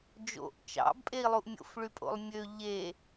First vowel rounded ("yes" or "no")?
yes